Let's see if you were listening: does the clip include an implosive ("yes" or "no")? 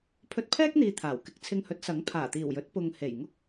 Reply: no